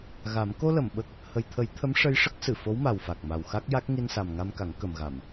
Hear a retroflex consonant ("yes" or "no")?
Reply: yes